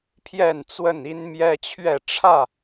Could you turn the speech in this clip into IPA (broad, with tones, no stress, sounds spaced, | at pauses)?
pʰ j ɛ˥˨ n t͡s w ə˥˨ n i˦ n m j ɛ˦ t͡ɕʰ ɥ ɛ˥˨ ʈ͡ʂʰ ä˥˨